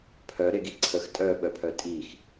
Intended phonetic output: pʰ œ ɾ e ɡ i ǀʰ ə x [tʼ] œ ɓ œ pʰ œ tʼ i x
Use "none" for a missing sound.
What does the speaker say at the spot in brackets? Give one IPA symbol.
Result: tʼ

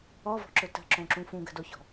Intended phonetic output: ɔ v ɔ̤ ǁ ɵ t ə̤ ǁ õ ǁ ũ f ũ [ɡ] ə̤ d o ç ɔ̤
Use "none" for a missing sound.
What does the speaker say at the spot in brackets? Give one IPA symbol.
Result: ɡ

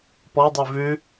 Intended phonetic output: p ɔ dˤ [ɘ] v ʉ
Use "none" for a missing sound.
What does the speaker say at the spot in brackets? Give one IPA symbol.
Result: ʉ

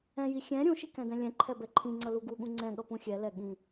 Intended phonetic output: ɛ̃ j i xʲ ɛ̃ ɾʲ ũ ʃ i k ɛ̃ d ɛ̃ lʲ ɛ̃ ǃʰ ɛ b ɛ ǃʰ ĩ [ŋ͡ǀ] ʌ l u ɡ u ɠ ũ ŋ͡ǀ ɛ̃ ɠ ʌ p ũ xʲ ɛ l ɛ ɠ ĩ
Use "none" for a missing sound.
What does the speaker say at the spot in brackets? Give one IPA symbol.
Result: ŋ͡ǀ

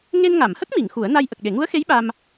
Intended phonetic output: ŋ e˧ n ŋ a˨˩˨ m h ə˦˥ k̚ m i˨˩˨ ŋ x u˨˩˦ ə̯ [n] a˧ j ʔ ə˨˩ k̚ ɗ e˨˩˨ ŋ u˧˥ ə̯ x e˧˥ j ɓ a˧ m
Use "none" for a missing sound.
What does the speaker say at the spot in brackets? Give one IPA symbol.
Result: n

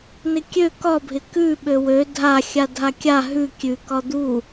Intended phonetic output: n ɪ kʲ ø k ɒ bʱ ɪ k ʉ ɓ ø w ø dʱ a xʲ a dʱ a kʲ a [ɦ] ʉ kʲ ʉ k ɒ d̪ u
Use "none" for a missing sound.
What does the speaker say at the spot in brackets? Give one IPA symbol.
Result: ɦ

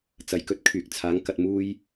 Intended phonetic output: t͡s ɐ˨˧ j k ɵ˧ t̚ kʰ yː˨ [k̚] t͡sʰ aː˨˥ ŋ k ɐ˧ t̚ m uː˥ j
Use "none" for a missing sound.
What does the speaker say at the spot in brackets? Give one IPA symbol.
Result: k̚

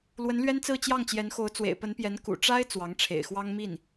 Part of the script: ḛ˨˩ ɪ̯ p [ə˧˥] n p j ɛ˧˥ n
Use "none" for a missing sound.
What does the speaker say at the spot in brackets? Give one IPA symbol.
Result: ə˧˥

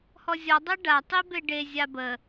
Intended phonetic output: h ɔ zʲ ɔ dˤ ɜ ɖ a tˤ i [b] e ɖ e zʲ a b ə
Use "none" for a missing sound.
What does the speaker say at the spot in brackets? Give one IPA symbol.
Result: b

